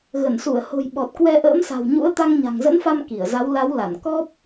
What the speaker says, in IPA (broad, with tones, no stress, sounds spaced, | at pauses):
ɣ ə˧˩ n s u˧˩ ə̯ h o̤˨˩ j ɓ ɔ˨˩ t̚ k w ɛ˧ ʔ ə̰ː˧˥ m s a̤˨˩ w ɲ ṵ˧˥ ə̯ t̪ a˧ ŋ ɲ a̤˨˩ ŋ z ə̰˧˥ n f a˧ m k i˧˩ ə̯ z a˨˦ w l a˨˦ w l a˧˩ n k ɔ˦˥ p̚